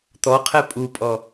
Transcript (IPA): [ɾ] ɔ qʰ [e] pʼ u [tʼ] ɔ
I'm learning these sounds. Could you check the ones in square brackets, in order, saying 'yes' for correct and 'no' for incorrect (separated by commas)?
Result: no, no, no